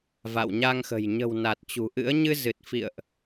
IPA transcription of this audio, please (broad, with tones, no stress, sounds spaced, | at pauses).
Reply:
v a̰˧˨ w ɲ a˧ ŋ x ə̤˨˩ j ɲ ə̤˨˩ w n a˨˩ t̚ t͡ɕ ṳ˨˩ ʔ ɨ̰˧˥ ə̯ ɲ ɨ˧ z ɨ˨˩ t̚ f ḭ˧˨ ə̯ ʔ